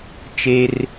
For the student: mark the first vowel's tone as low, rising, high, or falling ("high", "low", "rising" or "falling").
low